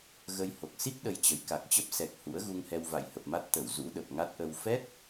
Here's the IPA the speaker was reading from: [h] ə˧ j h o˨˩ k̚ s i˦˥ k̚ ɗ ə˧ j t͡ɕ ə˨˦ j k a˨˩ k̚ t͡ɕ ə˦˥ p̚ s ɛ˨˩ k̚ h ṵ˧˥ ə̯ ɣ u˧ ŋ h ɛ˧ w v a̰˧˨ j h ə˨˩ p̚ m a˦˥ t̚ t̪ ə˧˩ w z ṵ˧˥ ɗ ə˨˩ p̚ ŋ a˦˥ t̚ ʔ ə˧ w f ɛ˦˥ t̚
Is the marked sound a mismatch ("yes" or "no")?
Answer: yes